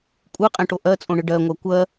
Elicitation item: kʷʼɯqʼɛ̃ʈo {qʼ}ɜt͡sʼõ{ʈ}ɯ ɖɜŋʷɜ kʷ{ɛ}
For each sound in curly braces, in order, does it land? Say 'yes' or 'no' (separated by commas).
no, no, no